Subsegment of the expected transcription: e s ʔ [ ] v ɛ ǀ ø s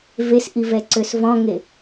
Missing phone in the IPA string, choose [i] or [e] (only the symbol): i